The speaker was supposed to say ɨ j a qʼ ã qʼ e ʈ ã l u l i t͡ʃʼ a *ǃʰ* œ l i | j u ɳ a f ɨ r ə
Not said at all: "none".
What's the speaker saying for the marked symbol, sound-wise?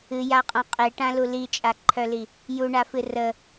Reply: ǃʰ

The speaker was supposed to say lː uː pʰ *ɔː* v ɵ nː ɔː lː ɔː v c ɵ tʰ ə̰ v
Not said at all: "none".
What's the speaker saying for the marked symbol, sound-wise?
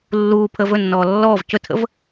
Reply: əː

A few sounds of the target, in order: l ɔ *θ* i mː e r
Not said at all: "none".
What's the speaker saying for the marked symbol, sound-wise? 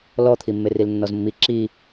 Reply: t̪ʰ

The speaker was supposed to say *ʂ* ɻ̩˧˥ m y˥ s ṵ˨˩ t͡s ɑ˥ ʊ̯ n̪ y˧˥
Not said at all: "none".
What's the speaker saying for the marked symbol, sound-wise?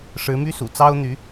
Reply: ʂ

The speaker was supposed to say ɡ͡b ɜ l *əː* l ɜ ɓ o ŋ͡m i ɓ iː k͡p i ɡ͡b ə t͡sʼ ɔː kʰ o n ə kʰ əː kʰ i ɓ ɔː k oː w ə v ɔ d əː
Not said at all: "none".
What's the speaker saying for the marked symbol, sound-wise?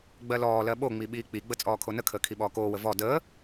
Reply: ɔː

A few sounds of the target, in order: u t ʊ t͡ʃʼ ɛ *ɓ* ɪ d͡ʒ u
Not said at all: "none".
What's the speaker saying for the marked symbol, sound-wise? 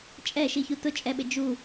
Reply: ɓ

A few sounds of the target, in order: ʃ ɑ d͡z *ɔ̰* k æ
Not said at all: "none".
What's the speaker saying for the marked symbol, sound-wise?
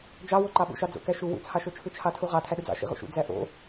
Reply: o̰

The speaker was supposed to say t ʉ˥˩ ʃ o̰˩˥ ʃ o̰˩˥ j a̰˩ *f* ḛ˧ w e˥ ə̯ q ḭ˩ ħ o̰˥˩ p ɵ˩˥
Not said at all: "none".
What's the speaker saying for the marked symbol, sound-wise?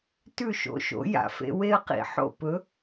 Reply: f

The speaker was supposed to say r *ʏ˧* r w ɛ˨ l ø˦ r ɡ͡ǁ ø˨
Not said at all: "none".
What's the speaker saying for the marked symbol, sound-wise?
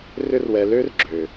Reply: ʏ˧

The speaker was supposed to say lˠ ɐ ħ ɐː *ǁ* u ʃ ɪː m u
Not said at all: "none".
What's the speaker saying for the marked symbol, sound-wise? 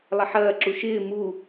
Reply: ǁ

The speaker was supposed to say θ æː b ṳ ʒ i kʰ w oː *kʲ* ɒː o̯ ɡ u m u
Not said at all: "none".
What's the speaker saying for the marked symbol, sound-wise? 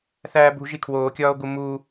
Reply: kʲ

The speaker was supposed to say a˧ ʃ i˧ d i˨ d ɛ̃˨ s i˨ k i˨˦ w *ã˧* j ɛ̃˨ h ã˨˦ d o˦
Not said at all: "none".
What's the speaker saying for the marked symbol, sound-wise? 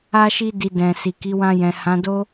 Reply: ã˧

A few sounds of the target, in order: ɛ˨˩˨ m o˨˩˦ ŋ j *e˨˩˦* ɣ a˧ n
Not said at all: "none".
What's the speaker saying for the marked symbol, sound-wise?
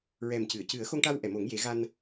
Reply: e˨˩˦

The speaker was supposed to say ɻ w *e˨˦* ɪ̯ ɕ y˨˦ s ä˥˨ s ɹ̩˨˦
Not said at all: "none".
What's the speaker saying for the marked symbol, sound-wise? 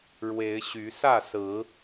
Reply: e˨˦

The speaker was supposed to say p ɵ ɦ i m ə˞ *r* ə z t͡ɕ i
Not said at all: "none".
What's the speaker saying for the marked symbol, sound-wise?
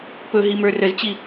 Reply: r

